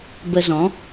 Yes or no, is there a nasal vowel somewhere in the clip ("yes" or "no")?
yes